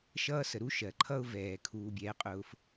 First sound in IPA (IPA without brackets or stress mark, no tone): ʃ